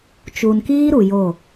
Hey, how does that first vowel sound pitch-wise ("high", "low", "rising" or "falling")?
low